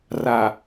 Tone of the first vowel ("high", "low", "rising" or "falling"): low